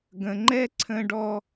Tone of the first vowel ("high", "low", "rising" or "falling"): low